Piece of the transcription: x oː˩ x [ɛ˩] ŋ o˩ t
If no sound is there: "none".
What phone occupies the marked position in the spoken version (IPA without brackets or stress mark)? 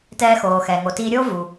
ɛ˩